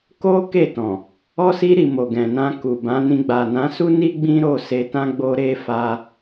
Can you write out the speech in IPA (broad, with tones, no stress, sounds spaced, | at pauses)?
k o˦ k e˦˨ t ɔ̃˨ | ɔ˧ s i˧ ɾ i˨ m o˨ ɡ ɛ̃˨ n ã˧ k u˨ b ã˨˦ n ĩ˧ ɡ͡b a˨ n ã˨˦ s u˦ n i˦ ɡ͡b ĩ˦ ɾ o˦˨ s e˧ t ã˦ ɡ͡b o˦ ɾ e˦ f a˦